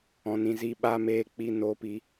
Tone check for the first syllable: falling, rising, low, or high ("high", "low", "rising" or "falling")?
low